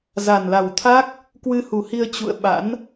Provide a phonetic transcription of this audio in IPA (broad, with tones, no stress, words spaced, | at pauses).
za˨˩nla˨˩wt̪ʰa˦˥k̚ | kwɨ˧hu˨˩hi˧ə̯ t͡ɕṵ˧˨ə̯ ɓa̰˧˥n